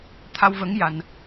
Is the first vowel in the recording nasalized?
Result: no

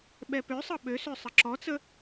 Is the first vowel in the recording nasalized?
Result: no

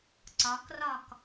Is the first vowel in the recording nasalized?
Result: no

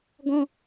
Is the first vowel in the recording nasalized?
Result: yes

